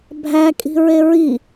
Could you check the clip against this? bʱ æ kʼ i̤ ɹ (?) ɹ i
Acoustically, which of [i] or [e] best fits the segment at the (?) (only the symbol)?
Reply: e